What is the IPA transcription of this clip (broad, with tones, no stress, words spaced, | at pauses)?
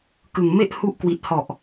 kɯ˨˩ŋme˥˩ʔhu˦˥ʔkwi˨˩t̚ hɔ˨˩ʔ